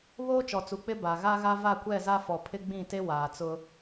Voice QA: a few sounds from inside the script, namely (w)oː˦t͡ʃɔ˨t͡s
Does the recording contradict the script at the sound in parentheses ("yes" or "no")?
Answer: yes